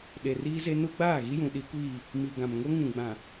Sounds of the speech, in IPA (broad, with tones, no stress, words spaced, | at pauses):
ɗe˨riː˦ze˦ nu˦ ɡ͡baː˦˨ɣi˦jũ˨ ɗi˦kʷiː˦˨ | mi˨ɡã˨mŋo˦ ŋũ˨ɡ͡bã˨